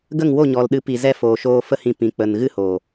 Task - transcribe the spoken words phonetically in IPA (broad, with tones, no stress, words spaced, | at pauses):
ɡə˦˨ŋwo˦˨ɲɔ˨lɗɨ˨˦ pi˨zɛ˦foː˨ ʃoː˧fə˦hĩ˧ pĩ˨ k͡pə˨nɣɨ˦hoː˨